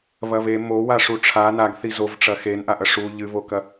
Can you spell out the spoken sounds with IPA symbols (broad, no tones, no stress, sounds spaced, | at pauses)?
β ɐ β e m o w a ʂ u ʈ͡ʂʰ a n a ɡ θ i z o v ʈ͡ʂ ɐ x e n ʔ a ʔ ɐ ʂ u ʎ ɨ β o k ɐ